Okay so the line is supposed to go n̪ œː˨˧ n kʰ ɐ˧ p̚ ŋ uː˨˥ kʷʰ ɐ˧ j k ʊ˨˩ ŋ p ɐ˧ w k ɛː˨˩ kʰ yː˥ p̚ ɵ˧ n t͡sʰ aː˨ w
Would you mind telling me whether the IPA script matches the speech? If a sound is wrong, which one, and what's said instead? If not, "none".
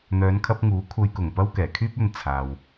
none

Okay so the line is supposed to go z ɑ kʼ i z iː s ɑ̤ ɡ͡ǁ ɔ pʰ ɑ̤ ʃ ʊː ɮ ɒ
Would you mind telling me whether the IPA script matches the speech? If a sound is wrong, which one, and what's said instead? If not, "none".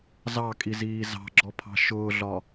s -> z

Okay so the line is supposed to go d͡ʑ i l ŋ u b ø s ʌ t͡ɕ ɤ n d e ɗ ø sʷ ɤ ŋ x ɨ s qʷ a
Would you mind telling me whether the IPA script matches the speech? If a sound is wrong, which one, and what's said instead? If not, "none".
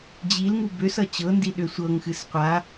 e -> i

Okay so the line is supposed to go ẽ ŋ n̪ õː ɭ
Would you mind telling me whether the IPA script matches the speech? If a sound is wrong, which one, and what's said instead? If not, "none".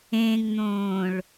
none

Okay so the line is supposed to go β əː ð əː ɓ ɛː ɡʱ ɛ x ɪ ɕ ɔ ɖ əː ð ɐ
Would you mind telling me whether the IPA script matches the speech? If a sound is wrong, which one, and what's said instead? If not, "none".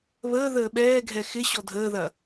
ɖ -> dʱ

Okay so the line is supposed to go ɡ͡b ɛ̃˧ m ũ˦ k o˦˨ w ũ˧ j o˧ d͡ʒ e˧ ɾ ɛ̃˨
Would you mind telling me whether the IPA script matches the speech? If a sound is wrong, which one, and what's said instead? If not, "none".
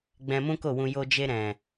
none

